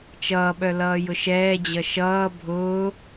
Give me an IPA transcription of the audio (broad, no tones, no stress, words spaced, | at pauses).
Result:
t͡ʃʌːɓœ lʌːjʊʃɛːd͡ʑʌ ʃʌː bʱʊː